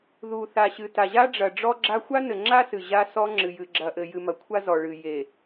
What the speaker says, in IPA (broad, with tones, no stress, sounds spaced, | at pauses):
ð u˨ θ a˨ ɕ ɨ˨ t a˨ ʑ a˦ ɖ͡ʐ ɐ˨ ɖ͡ʐ ɔ˦ ɡ͡ǁ a˦ xʷ a˦ n ɘ˨ ŋ͡ǁ a˦ s ɨ˨ ʑ a˦ s ɔ˦ ŋ͡ǁ ɨ˨ j ɨ˨ ɡ͡ǁ ɐ˨ ʔ ɘ˨ j ɨ˨ m ɐ˨ kʷʰ a˦ z ɔ˨ ɭ ɨ˨ j e˨